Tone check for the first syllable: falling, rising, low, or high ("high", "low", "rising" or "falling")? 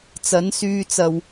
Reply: rising